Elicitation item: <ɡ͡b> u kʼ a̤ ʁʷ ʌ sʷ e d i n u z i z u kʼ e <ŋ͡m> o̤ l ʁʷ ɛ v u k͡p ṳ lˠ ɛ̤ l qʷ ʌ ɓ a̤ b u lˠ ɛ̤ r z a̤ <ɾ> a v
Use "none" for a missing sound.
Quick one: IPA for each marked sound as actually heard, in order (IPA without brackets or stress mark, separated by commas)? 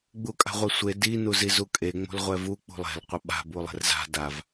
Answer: ɡ͡b, ŋ͡m, d